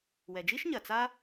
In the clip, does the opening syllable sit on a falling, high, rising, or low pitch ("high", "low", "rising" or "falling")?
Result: low